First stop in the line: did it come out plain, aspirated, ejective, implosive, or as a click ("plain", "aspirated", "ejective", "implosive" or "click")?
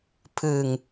aspirated